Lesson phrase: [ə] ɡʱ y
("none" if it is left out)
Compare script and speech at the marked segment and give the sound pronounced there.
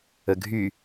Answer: ə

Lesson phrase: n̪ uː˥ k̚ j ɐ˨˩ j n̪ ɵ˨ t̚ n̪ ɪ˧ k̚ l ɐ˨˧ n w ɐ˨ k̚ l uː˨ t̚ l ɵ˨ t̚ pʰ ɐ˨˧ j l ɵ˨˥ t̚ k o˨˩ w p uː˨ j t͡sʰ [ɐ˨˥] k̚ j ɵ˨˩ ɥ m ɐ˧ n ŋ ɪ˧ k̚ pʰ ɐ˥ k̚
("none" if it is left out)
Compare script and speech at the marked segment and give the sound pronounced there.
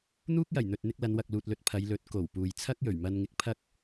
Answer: ɐ˥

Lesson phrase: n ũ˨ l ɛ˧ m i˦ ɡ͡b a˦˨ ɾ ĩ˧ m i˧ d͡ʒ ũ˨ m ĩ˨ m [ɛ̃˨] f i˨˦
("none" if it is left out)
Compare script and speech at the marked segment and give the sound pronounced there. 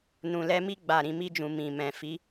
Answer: ɛ̃˨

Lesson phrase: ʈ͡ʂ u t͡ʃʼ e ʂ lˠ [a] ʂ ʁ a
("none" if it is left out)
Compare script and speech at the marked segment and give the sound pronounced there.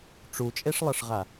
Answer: ʌ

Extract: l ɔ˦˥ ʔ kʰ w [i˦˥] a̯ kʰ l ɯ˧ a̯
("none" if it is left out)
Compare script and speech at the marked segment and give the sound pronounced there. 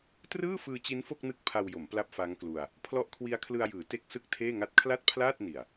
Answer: i˦˥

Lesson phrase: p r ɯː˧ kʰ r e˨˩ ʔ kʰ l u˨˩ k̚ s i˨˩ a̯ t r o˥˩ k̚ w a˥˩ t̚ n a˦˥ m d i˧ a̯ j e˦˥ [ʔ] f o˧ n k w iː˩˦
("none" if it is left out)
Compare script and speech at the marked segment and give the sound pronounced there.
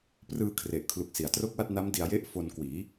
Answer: ʔ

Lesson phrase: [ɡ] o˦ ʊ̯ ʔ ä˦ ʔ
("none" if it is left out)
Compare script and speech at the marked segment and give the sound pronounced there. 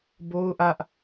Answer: b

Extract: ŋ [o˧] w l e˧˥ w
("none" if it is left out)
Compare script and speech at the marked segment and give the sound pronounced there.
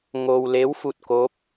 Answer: o˧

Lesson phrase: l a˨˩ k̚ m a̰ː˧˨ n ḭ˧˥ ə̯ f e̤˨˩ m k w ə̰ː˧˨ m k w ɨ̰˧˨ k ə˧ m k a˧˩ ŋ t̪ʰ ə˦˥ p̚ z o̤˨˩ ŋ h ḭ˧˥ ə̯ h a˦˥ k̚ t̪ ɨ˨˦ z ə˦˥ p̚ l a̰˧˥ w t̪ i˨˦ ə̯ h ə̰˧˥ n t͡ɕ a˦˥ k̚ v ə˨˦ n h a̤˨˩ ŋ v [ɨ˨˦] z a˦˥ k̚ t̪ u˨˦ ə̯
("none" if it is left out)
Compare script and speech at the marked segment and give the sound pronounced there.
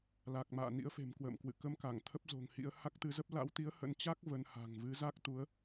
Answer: ɨ˨˦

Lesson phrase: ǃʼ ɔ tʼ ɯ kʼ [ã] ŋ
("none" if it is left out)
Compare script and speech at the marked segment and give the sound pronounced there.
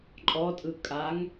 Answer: a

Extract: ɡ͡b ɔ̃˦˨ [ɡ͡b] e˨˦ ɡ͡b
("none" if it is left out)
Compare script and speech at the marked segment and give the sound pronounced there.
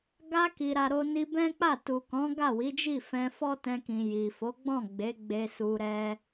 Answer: ɡ͡b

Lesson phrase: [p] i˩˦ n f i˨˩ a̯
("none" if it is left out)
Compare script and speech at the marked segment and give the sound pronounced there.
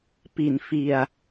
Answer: p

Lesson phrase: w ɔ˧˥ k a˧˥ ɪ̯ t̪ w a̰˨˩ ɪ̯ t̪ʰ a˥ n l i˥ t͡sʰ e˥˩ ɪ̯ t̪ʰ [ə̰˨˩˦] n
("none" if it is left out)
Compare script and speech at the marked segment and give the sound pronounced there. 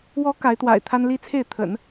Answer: ə̰˨˩˦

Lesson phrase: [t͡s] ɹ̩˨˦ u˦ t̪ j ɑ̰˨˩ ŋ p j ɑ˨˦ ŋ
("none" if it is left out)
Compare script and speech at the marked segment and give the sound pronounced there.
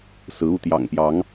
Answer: s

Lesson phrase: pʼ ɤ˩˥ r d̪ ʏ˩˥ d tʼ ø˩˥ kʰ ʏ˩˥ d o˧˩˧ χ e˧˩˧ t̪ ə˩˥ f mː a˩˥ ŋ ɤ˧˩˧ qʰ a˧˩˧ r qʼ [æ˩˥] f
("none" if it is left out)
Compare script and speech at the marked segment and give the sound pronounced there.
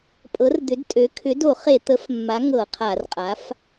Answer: a˩˥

